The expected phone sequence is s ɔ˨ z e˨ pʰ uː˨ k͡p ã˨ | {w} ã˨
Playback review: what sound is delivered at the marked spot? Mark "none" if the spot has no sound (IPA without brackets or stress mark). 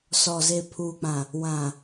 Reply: w